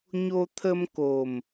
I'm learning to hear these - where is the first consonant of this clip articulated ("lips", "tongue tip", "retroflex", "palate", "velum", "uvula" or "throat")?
palate